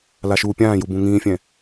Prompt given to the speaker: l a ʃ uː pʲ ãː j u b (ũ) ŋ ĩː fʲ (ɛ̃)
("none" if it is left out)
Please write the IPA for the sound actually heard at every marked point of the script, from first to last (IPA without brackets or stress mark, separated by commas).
ũ, ɛ̃